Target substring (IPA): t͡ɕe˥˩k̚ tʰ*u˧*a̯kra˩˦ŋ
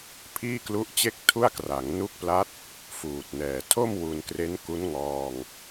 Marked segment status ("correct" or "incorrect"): incorrect